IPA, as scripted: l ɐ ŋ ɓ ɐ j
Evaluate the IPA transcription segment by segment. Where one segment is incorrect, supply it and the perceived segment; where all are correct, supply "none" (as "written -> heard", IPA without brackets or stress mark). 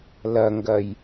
ɓ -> ɡ